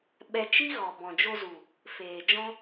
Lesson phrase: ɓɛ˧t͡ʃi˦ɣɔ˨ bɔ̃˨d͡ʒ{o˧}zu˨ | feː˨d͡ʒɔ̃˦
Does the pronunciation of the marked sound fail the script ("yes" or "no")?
no